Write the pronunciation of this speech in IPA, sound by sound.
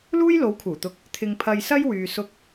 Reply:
luː˥jlo˨˥wkʰuː˨˩t̪ʊ˨˥k̚ | t̪ʰɪ˨ŋpʰɐ˨j sɐ˥j wyː˨sʊ˧k̚

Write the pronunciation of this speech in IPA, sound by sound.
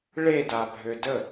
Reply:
ɭedabʱø də

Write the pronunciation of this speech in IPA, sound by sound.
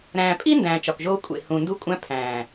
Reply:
ɾæ̃ː˨pʼi˦ ndæ̃ː˨t͡ʃɒ˨kʒoː˧ kʷʼḛ˨ hũ˨ ndu˦kʷʼæ̃˦ pʰæ̃ː˨

